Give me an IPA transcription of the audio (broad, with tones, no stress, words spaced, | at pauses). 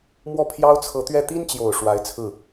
mwɔ˥˩ pʰjɑ˥ʊ̯t͡sʰɤ˧˥t̪ɥɛ˥˩ t̪i˥nt͡ɕjo˨˩ʊ̯ ʂwa˧˥ɪ̯t͡sʰɹ̩˥˩